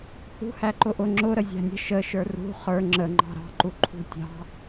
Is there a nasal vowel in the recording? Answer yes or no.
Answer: no